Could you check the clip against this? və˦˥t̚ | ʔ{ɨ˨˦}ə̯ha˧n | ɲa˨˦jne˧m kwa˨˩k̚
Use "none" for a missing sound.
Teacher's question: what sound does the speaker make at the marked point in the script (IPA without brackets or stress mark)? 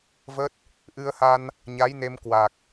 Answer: ɨ˧